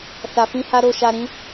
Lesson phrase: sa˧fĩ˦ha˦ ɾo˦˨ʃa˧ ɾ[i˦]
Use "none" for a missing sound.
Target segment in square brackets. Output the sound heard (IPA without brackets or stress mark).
ĩ˦